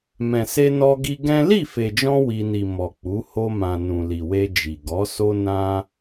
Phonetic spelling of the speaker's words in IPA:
m ɛ̃˨ s e˧ n ɔ˧ ɡ i˧ ɡ ɛ̃˦ l i˦˨ f e˨ d͡ʒ ɔ̃˧ w i˧ n i˨ m ɔ˨ k͡p u˨˦ h o˧ m ã˨ n ũ˨ l i˨ w e˧ d͡ʒ i˨ ɡ ɔ˨˦ s o˦ n ã˦

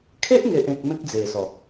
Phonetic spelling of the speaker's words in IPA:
kʰ e˦ ʔ ŋ e˨ ʔ ẽ˨ k̚ m ẽ˦ k̚ d͡z e˨˩ s ɔ˨˩

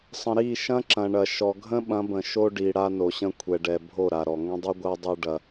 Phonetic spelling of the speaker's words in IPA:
sˤ ə̃˨ ɾ i˦˨ ʃ ɐ̃˦ ǁ ɐ̃˨ ɳ ɐ˨ ʃ ɔ˨ ɡʱ ə̃˦ ɓ ɐ̃˨˦ b ə̃˨ ʃ o˦ ɖ i˨ ɽ a˦ n o˨ ɕ ə̃˦ kʷʰ ɛ˨ ɖ ɛ˨ bʱ o˦˨ ɾ a˨ ɾ ɔ˨ ŋ ə̃˦ dˤ i˦ ɡʷ a˦ dˤ o˦ ɖ ɐ˦

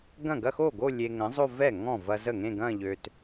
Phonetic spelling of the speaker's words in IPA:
ɡ ɐ̃˥˩ ɡ ɐ˥˧ x o˥˩ ɡ o˥˧ lʲ e˧ ŋ ə̃˨˥ zˤ o˥˧ v ɛ˥˩ ŋ ɔ̃˥˩ v ɐ˧ z ə˥˩ ŋ ẽ˥˧ ɡ ɐ̃˥˧ ʎ ø˧ t

